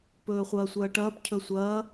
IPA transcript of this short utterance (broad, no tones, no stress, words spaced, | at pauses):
pɵːχʷɐːsʷɐːʈɐːp cʰɵsʷɐː